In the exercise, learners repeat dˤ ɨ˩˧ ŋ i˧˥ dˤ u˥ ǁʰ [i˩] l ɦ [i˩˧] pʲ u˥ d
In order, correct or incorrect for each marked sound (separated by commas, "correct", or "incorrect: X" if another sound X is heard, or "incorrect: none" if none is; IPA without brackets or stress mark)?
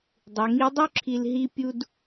incorrect: i˧, incorrect: i˥